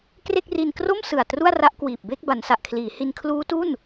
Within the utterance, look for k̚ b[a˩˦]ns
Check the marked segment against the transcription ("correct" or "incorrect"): correct